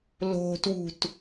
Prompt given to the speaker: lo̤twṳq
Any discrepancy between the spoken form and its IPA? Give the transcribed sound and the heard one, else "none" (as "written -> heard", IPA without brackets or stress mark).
q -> t